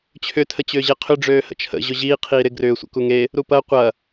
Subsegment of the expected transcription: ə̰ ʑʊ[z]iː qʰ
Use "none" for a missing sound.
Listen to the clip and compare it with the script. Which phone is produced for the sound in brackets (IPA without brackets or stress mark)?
ʑ